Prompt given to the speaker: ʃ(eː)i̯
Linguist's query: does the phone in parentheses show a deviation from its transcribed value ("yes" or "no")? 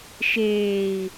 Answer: no